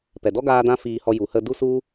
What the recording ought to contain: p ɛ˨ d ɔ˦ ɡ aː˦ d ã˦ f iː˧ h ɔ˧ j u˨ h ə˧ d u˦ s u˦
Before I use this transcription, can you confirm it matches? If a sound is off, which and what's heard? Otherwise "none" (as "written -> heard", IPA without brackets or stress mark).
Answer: none